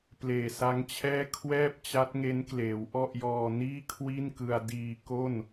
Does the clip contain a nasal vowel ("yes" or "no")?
no